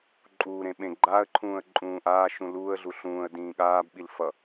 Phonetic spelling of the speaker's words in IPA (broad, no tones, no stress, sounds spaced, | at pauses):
ǃʼ uː ɾ ẽ ɓ ẽ ɡ͡ǃ aː ə̯ ǃʰ ũː ə̯ ǃʼ ũː ʔ aː ʃ ũ l uː ə̯ ɮ u ɬ ũː ə̯ d ĩː ɠ aː b ɓ i l f ʌ